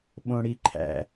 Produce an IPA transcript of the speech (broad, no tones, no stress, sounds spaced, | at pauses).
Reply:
ɓ õ ɽ i ǃʰ æ̰